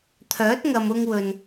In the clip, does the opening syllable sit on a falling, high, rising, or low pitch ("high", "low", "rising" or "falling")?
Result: rising